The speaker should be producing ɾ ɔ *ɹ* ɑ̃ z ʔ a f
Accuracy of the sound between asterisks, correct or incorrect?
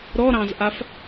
incorrect